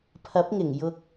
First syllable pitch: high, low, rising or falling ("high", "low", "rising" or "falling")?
rising